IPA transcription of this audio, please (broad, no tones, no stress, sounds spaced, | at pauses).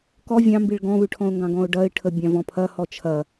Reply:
k ɔ vʲ ɑ̃ m b i ɭ ɡ ɔ̃ β ʉ ʈʰ ɔ̃ ʊ̯ ŋ ɡ ɑ̃ ɡ ɔ̃ ʊ̯ ɖ ɐ ɪ̯ ʈʰ ə bʲ ɑ̃ v ɔ̃ pʰ ɐ h ɔ t͡ʃʰ ɐ